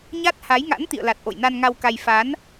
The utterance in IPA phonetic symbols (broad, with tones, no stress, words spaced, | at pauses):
ɲa˦˥t̚ ha˨˦jŋa̰˧˥n t̪ḭ˧˨ə̯la˨˩t̚ ʔo̰˧˨jna˧nŋa˧wka˧j fa˨˦n